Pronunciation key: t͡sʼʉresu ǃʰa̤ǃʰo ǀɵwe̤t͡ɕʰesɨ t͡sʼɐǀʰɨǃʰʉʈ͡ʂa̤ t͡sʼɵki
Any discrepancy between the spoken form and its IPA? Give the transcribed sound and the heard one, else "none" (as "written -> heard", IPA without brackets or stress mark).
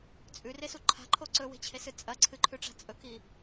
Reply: none